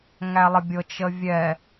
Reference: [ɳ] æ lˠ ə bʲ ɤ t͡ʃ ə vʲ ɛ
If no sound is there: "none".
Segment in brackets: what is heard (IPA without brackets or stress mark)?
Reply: ŋ